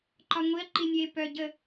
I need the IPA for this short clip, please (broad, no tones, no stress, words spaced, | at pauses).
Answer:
ǃɒŋʷiɐ̯ ǃinʲe pœ ɟə